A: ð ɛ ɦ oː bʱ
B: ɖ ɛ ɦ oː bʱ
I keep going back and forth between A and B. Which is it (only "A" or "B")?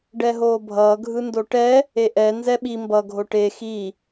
B